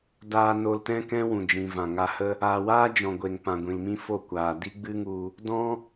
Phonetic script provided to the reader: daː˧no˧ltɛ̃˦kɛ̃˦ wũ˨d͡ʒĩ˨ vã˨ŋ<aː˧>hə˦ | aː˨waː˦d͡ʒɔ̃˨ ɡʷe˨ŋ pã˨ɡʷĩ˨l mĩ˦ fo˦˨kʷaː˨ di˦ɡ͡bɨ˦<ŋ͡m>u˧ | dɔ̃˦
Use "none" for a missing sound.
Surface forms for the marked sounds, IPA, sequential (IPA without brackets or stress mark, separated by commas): a˧, ŋ